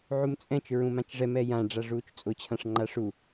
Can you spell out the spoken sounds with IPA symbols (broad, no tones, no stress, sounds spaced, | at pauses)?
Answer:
ʕ u m t͡sʼ ɛ̃ t͡ʃ ɹ ũ m ã t͡ʃ ʐ ɛ m ɛ j ã ɖ͡ʐ a ʐ uː t͡ʃ t͡sʼ ʊ t͡ɕʰ ã ʂ ŋ͡ǃ a ʂ u